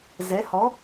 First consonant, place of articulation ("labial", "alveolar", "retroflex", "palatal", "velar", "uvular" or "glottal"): alveolar